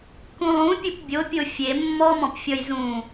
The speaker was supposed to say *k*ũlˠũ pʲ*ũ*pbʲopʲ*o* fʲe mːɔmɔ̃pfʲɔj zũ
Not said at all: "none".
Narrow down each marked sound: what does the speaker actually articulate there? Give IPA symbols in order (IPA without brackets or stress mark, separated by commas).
k, u, o